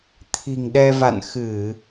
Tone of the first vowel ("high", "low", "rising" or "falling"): low